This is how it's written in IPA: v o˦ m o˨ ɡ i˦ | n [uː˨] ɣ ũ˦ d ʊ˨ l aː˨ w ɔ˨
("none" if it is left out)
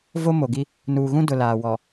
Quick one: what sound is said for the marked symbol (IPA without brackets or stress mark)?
uː˨